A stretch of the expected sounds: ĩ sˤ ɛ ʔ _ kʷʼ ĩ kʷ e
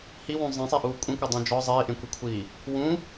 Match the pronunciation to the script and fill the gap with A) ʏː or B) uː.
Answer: B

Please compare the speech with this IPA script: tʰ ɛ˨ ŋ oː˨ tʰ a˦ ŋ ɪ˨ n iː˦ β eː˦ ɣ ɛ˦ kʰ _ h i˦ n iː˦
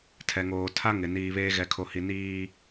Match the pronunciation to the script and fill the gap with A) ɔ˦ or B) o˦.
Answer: B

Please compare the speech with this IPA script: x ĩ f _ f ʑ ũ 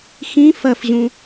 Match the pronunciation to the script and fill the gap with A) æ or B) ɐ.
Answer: B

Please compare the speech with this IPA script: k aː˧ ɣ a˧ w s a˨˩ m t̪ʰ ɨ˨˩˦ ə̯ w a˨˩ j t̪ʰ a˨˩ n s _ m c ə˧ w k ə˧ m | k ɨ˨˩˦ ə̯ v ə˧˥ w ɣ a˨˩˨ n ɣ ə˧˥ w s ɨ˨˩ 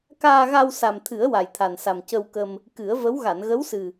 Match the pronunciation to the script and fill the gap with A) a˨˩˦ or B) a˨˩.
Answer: B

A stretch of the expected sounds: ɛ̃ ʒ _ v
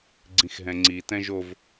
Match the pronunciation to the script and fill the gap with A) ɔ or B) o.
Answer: B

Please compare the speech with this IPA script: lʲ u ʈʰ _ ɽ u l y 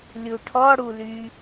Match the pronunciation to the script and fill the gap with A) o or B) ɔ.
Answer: B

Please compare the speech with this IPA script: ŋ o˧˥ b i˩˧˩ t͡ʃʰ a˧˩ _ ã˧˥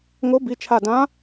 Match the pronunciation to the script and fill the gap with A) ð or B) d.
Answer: B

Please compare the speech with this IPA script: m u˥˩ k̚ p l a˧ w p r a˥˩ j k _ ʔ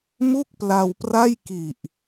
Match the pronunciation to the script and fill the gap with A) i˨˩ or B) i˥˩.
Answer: A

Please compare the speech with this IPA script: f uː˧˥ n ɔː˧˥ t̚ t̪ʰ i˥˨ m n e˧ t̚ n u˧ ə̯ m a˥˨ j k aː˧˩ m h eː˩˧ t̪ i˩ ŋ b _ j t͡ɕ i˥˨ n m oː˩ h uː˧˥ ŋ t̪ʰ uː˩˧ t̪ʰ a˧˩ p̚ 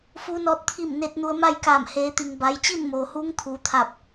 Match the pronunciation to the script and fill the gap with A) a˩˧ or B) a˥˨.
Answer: A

